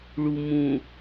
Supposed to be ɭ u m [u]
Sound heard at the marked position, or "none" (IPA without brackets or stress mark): ũ